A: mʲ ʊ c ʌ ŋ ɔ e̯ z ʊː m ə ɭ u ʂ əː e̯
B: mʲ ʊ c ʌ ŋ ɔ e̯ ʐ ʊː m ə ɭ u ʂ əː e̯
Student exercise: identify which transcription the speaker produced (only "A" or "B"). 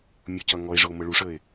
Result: B